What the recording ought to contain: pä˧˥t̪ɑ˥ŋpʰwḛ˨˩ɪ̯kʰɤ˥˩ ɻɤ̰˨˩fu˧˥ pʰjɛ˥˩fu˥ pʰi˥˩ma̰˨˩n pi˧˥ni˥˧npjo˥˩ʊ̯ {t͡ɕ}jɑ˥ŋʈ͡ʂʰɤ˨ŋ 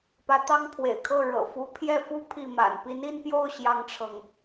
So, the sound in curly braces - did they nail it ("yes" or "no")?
no